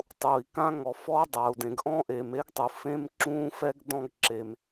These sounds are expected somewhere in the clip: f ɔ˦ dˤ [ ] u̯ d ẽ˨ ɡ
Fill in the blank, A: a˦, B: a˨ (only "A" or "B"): B